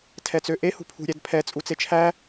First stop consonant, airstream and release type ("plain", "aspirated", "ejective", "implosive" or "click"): aspirated